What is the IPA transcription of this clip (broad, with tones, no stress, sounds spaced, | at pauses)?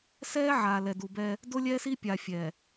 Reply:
s ɛː˦ ʕ aː˨ l ɛ˨ d u˨ b ɛː˦ | d o˦ lʲ ɛː˦ s i˦ pʲ a˨ fʲ ɛː˨